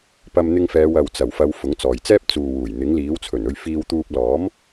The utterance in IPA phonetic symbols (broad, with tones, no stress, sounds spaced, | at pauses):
p ɐ˧ m n̪ ɪ˧ ŋ f ɛː˨˧ w ɐ˨ w t͡s ɐ˨˩ w f ɐ˨˧ w f ʊ˨˥ ŋ t͡s ɔː˨ j t͡s ɛː˥ p̚ t͡s uː˨ w uː˨˩ j n̪ ɪ˨˥ ŋ l iː˨˥ w t͡sʰ ɵ˨˩ n ɵ˧ ɥ f iː˧ w t̪ uː˧ p̚ l ɔː˨˥ m